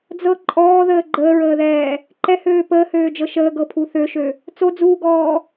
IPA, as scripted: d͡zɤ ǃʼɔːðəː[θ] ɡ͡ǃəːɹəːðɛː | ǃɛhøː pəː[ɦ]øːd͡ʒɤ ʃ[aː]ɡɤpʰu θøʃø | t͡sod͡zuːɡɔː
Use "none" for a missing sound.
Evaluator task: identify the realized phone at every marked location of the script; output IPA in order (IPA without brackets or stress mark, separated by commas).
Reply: none, h, əː